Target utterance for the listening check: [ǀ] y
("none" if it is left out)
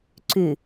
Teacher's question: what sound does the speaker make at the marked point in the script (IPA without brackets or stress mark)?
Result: ǀ